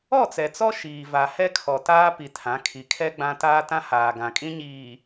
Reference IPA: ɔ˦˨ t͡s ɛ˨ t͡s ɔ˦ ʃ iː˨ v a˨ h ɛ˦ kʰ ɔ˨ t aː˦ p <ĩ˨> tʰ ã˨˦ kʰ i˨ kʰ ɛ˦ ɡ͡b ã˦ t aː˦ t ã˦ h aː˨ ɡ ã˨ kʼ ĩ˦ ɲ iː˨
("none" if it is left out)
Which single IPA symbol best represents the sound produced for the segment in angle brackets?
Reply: i˨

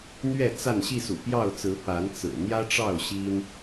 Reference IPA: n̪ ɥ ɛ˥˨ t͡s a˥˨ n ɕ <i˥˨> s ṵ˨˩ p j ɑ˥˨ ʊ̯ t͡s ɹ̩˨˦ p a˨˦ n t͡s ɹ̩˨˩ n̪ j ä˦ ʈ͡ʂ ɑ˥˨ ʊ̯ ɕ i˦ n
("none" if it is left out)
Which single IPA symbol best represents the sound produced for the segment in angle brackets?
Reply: i˥˨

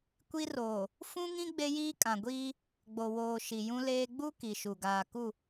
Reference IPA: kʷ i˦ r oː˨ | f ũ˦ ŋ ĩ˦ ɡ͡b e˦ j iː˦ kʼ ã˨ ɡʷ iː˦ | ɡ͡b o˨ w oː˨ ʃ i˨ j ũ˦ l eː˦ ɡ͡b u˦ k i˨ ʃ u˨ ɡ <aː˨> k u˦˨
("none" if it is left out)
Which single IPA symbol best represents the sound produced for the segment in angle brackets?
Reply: aː˨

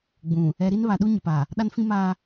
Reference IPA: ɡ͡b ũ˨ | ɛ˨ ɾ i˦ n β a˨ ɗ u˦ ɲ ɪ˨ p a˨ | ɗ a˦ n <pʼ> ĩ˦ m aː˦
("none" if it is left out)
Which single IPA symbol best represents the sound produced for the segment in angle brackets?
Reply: f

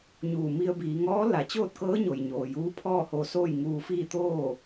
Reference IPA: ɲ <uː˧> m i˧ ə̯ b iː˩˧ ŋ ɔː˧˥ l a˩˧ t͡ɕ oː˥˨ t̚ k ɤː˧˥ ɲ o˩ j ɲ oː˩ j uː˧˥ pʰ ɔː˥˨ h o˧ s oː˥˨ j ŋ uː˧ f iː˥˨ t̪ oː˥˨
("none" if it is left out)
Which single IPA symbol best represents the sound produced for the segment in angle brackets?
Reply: uː˧˩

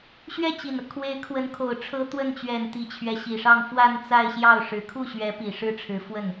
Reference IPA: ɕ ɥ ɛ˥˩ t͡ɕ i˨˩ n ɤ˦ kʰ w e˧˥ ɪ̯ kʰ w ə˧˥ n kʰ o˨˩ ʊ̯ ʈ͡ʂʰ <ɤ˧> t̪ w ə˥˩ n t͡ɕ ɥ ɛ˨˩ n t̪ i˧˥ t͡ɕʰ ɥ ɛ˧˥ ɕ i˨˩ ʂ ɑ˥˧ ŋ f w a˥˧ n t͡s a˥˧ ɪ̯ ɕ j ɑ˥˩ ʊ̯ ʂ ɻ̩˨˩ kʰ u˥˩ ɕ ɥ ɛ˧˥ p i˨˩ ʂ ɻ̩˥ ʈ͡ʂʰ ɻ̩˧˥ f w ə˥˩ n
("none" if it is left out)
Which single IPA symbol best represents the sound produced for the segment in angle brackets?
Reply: ɤ˥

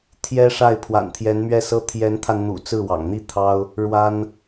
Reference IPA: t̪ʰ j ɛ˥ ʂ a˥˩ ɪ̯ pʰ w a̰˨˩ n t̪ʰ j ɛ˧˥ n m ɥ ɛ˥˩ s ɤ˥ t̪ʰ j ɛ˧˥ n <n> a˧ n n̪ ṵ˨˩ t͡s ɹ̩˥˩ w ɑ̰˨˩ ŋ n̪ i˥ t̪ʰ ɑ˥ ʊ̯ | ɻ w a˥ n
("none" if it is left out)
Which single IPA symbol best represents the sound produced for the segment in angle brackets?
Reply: t̪ʰ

